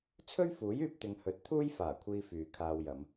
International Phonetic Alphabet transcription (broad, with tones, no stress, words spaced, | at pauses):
t͡sʰɵ˥ɥfuː˨˥jyː˧p̚t̪ɪ˨˧ŋ hɵ˨˥t̚t̪ʰuː˥jfaː˨˩kʷʰiː˧ fyː˨kʰaː˧wjɐ˨˧m